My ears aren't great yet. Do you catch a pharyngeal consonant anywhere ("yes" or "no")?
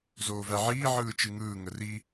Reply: yes